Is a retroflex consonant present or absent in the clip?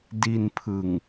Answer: absent